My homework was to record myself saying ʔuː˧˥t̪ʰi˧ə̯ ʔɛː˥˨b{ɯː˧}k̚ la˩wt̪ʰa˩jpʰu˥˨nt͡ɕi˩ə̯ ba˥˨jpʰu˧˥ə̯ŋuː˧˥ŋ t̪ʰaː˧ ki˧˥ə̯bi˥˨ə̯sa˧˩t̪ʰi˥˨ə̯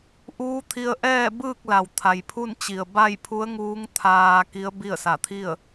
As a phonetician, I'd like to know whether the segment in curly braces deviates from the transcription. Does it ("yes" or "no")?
yes